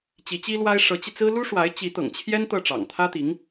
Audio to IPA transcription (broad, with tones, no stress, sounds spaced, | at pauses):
t͡ɕ i˧˥ t͡ɕ i˥ l w a˥ ɪ̯ ʂ ɤ˧˥ t͡ɕ i˧ t͡s ɹ̩˥ l u˥ ʂ w a˧˥ ɪ̯ t͡ɕ i˧˥ t̪ ɤ̰˨˩ ŋ t͡ɕʰ j ɛ˥ n t̪ ɤ˥˩ ʈ͡ʂ ɑ̰˨˩ ŋ t̪ʰ ä˥ t̪ i˧˥ ŋ